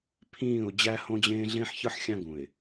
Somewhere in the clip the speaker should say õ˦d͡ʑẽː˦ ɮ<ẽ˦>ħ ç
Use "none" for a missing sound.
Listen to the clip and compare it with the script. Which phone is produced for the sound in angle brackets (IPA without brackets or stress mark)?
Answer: ẽ˦